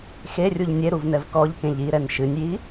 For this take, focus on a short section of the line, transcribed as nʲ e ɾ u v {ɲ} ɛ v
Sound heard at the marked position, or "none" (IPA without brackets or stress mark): n